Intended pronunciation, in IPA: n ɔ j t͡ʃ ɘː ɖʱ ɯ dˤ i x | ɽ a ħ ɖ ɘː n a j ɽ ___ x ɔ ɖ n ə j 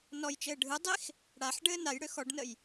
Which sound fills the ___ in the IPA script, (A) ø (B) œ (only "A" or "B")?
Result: A